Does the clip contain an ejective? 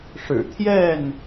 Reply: no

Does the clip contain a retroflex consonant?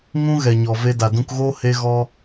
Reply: no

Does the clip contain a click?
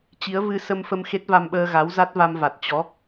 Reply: no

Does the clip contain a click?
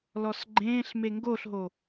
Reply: yes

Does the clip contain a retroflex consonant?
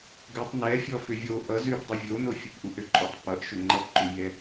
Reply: no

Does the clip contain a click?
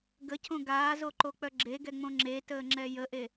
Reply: yes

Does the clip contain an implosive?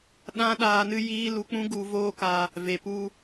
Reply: yes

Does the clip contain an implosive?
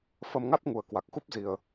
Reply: no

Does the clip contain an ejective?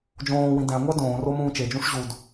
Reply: no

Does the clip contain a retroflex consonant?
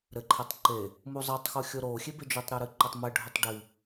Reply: yes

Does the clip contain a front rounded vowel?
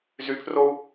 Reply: yes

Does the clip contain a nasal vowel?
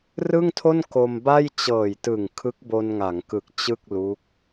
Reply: no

